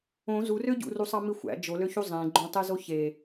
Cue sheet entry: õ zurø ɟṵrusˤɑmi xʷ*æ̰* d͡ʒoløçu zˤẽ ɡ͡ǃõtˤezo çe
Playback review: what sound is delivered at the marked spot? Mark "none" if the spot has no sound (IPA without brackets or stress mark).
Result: æ̰